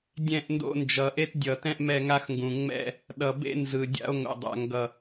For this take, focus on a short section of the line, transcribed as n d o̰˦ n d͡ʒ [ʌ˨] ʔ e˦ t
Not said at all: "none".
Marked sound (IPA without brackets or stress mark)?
ʌ˨